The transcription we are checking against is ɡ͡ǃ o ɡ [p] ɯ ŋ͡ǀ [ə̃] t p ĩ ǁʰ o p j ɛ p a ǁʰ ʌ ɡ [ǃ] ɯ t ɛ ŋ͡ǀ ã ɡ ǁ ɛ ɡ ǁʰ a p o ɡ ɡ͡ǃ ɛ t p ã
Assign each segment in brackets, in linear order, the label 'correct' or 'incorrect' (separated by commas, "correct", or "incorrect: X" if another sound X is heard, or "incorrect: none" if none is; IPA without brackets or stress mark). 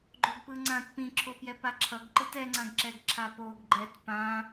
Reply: correct, incorrect: ã, correct